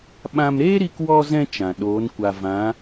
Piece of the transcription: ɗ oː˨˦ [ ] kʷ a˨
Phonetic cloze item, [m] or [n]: n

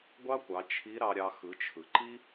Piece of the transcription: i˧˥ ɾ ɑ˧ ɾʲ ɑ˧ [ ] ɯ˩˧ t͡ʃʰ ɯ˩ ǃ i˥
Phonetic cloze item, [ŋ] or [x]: x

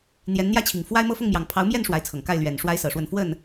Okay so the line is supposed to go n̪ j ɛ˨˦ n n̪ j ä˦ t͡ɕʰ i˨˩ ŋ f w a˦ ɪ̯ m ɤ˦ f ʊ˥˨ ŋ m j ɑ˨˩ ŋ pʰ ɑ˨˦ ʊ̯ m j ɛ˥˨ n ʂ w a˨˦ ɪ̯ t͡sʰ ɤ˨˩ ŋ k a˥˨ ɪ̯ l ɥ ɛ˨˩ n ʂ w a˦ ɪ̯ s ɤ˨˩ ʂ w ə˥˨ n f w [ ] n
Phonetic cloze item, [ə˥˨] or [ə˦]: ə˥˨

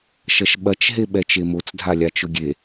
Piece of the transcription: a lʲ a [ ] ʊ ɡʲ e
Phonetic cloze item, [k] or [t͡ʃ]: t͡ʃ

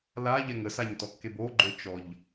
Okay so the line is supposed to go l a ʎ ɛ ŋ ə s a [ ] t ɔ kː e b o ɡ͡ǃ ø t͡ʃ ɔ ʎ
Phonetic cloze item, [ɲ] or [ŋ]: ɲ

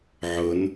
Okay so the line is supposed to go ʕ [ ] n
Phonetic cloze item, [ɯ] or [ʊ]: ʊ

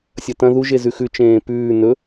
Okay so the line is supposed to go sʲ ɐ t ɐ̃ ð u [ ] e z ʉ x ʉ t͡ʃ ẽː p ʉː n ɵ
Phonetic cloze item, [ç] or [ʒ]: ʒ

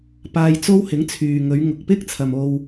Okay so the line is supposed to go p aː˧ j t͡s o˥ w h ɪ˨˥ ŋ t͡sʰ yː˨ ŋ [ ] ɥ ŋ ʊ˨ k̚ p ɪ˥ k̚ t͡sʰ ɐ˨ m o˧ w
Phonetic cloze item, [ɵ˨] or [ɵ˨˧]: ɵ˨˧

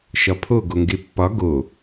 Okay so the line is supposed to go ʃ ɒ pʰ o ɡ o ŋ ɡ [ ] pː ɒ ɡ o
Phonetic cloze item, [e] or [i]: e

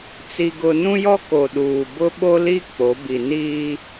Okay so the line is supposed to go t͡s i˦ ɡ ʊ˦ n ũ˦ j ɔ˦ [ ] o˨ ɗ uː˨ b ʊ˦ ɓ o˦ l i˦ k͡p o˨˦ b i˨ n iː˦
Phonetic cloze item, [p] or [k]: k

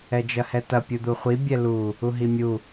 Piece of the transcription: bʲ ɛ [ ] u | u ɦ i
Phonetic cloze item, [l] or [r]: l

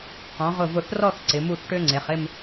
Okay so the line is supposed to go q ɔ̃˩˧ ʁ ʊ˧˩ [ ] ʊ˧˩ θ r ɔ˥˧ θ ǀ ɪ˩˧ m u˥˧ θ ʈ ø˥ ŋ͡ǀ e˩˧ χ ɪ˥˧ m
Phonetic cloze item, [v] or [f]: v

